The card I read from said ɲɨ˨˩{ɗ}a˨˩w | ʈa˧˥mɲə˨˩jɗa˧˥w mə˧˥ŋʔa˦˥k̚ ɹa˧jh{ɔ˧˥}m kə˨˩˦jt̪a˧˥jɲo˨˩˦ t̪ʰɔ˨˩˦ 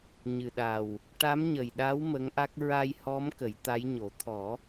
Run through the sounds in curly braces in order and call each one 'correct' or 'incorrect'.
correct, correct

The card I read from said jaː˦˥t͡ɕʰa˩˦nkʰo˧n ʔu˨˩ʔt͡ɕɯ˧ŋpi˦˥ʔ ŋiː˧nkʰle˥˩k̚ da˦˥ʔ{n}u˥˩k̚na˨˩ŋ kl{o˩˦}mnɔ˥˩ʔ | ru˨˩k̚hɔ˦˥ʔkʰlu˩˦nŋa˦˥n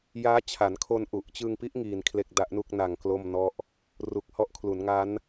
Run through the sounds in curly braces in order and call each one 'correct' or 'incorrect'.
correct, incorrect: o˥˩

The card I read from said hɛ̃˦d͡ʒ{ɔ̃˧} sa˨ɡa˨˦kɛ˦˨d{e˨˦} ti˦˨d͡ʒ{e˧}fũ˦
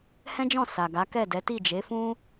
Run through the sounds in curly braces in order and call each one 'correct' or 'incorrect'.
incorrect: ɔ̃˦˨, incorrect: ɛ˨˦, incorrect: e˨˦

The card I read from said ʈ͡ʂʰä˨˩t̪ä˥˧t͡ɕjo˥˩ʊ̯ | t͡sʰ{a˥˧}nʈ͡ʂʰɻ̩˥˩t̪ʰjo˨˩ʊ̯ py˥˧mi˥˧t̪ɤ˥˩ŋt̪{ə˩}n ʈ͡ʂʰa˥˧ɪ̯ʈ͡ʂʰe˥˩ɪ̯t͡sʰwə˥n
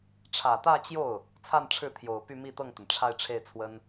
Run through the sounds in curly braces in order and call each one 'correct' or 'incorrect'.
correct, correct

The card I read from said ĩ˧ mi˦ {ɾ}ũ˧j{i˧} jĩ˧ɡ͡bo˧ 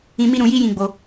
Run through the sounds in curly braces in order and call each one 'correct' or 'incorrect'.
correct, incorrect: i˦

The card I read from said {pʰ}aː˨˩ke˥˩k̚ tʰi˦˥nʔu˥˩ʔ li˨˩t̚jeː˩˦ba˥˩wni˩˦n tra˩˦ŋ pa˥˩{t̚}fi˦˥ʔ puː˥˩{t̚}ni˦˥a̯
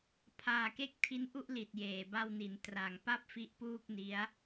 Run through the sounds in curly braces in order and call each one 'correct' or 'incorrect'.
correct, incorrect: p̚, incorrect: k̚

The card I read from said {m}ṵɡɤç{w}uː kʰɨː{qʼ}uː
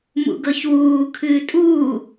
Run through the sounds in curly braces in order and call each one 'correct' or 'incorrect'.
correct, correct, incorrect: tʼ

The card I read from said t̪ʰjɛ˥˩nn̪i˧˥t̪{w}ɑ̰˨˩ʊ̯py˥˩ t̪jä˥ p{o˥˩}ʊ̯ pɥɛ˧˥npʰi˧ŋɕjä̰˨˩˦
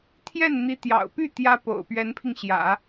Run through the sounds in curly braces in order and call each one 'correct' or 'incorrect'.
incorrect: j, incorrect: o̰˨˩

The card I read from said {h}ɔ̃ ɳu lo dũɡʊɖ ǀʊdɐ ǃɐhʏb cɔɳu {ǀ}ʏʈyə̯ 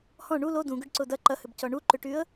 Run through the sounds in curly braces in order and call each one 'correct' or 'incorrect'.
correct, incorrect: ǃ

